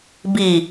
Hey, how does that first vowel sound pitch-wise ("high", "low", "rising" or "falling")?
low